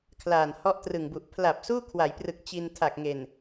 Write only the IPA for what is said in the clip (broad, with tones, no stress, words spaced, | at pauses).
kʰlaː˨˩nhɔ˥˩ʔ trɯ˨˩ŋbu˨˩ʔ pʰla˨˩p̚ suː˥˩kʰwa˩˦jprɯ˨˩k̚ t͡ɕi˧ntʰa˨˩k̚ŋe˨˩n